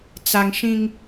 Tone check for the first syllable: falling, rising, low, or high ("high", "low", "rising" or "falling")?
low